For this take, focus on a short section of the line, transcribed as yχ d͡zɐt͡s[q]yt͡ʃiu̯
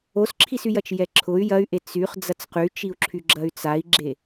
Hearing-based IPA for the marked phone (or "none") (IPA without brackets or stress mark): q